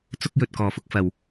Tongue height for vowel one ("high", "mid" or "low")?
high